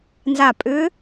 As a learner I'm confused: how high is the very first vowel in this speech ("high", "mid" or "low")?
low